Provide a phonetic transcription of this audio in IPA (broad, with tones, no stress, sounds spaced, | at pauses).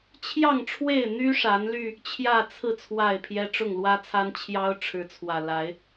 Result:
t͡ɕʰ j ɑ˥˨ ŋ ʈ͡ʂʰ w e˥˨ ɪ̯ n̪ y˦ ʂ a˨˦ n l y˧ | t͡ɕʰ j ä˥˨ t͡sʰ ɹ̩˥˨ t͡sʰ w a˥˨ ɪ̯ pʰ j ɛ˦ ʈ͡ʂ ʊ˥˨ ŋ l w ä˦ t͡sʰ a˦ n t͡ɕʰ j ɑ˦ ʊ̯ ʈ͡ʂʰ ɻ̩˨˦ t͡sʰ w ä˨˩ l a˨˦ ɪ̯